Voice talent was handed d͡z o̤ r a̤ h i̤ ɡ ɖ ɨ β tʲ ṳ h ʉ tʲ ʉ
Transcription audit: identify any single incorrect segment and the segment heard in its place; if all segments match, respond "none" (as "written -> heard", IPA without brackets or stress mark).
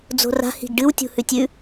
β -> w